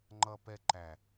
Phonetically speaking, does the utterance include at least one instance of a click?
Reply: yes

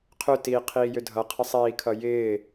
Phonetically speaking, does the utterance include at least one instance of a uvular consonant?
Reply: yes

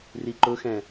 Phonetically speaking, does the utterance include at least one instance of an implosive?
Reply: no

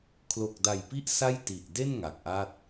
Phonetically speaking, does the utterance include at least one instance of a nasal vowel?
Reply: no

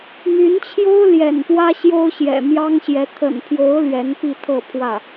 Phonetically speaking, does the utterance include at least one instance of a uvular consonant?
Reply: no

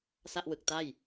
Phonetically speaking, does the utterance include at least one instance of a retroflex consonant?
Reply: no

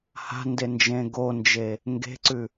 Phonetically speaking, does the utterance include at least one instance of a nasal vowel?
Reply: yes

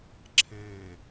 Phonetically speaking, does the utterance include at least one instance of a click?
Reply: yes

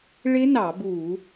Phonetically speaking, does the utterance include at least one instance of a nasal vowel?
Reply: no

